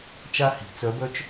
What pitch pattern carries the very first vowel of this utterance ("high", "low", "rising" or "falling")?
high